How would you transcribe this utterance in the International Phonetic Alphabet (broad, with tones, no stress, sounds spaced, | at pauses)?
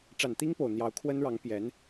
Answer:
ʈ͡ʂ a˨˩ n t̪ i˥ ŋ p o˨˩ ʊ̯ n̪ j ɑ˧˥ ʊ̯ kʰ w ə˥ n ɻ ɑ˧˥ ŋ p j ɛ˧˥ n